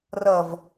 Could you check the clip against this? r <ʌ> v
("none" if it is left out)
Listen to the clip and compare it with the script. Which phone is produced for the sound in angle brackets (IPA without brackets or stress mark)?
ʌ